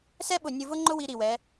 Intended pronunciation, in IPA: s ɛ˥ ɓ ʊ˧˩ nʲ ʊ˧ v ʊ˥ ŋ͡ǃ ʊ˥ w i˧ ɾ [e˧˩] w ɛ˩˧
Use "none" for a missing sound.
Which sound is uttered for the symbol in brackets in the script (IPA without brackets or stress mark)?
i˧˩